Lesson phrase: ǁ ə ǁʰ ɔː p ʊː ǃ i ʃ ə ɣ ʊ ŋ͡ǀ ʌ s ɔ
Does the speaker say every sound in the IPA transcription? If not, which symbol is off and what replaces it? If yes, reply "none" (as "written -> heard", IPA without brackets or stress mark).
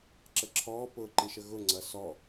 none